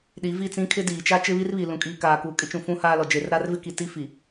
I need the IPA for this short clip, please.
ɗ i˨˦ v i˦˨ t͡s ĩ˦ kʰ ɪ˦ d iː˨ t͡ʃ a˦ t͡ʃ ɪ˦ β i˦ r β i˨ l ũ˨ kʼ iː˨ k aː˨ k uː˨ kʼ ɪ˦ t͡ʃ ũ˨ f ũ˦ h aː˦ l ɔ˨ d͡ʒ e˨ r ɾ a˦ r v ɪ˦ k i˨ t i˦ f i˨

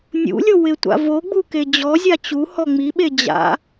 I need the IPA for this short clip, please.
nʲ ṵ lʲ o w ɪ tʷ a̰ v o ɡ͡b u k e d͡ʑ ɔ zʲ a t͡ɕ u h ɔ ŋ͡m i ɓ e d͡ʑ a̰

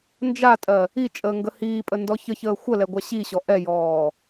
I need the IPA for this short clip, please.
n d͡ʒ a tʼ ɜ | i t͡ʃʼ əː ŋ ɡ ə h iː pʼ ə n d ɔ ç ə ç əː xʷ ə l ɛ ɡʷ a ɕ i ɕ ɔ ʔ ɛ j ɔː

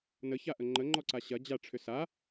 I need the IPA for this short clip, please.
n ə ç a ʔ ə ŋ͡ǃ ə ŋ͡ǃ ɔ ǀ a ɕ ɐ d͡ʑ a ʈ͡ʂʰ ʏ s a

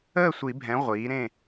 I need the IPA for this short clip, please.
əː˥˨ sʷ i˨˩˦ bʱ ɛ̃˩˥ ʁʷ iː˩˥ ɾ ẽ˥˨

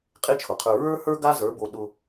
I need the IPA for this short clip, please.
qʼ e˦ t͡ʃʰ ʊ˨ qʰ ə˞˧ ɹ ə˞˦ h ə˞˦ ɡ a˦ z ə˞˨˦ b o˧ ɗ ʊ˧

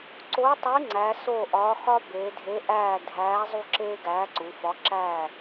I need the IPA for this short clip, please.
ǀ o˨˥ tˤ i˨˥ ŋ͡ǀ æ˩˧ s o˦˨ ʔ ɒː˨˥ x ɒ˦ b eː˩˧ dʱ e˨˥ ʔ æː˦˨ dʱ æː˨˥ zˤ u˦˨ ǁ eː˦ ɡ æː˨˥ ǀ u˩˧ f ɒ˨˥ ǁ æ˦˨

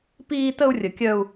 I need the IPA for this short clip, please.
p iː˦ t ə˦ u̯ rʲ ə˨ kʲ œ˦ u̯

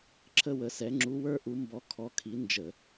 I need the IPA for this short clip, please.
ǁʰ ə˥˧ w ə˨˥ s ɛ˨˥ ŋ͡ǁ u˨˥ w ə˞˥˧ ʔ u˨˥ m b ɔ˨˥ kʰ ɔ˨˥ kʰ i˨˥ n d͡ʒ ə˧˩˧

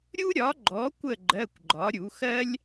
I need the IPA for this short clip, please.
ɾʲ u˥ ɾʲ ɒ˨˥ ɡ͡ǃ ɔ˨˥ kʷ ə˦˨ ɡ͡ǃ ɜ˧˥˧ kʷ ɡ͡ǃ ɒ˨˥ ɾʲ u˨˥ x ɜ˥ lʲ

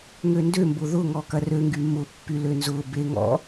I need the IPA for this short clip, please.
ŋ ø n d ø m b ʊ ð ʊ ŋ ɔ k ɐ r ø ŋ ɡ y m ʊ pː y l ø n z ʊ b e ŋ ɔ̰

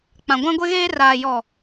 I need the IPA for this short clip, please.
k͡p ã˨ ɡʷ ã˦ ɡʷ e˦ ɣ eː˦ r aː˨ j ɔ˨

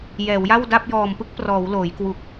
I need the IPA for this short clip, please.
j ɛː˩˦ w j a˥˩ w d a˥˩ p̚ j ɔː˨˩ m p ɯ˦˥ k̚ p r ɔː˩˦ w l oː˩˦ j k w u˨˩ k̚

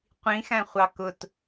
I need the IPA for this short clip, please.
qʷ ĩ x æ̃ χʷ ɑ k ʊ t

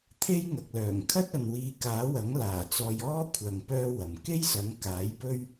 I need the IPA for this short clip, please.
t̪ʰ e˥ j ŋ ɐ˨ k̚ l œː˨˩ ŋ kʰ ɐ˥ t̚ ɐ˨ n w iː˨˧ k aː˨˥ w ɐ˨˥ ŋ l aː˨˩ t͡s ɔː˧ j ɔː˥ kʷʰ ɐ˨ ŋ p œː˥ w ɐ˨ m k e˥ j s ɐ˨˥ ŋ k aː˨˥ j p ɵ˥ ɥ

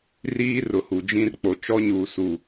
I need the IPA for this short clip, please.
r iː˦ r ʊ˨ h u˨ d͡ʒ ĩ˦ r k͡p o˨ t͡ʃ ɔ˦ ɲ uː˨ s u˨

